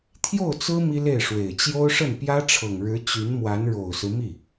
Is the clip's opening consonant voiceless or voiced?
voiceless